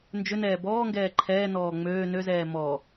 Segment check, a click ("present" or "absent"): present